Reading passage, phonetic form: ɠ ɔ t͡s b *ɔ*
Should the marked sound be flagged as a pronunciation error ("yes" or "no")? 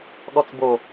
yes